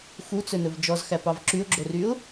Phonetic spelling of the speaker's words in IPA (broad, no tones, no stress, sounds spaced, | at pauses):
x u t͡s ɵ n ɵ v d͡ʒ ɔ z x æ p ɑ v ǁ y ʊ̯ ɡ͡ǁ o r y ʊ̯